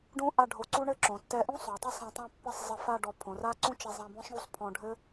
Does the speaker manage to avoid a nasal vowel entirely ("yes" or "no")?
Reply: no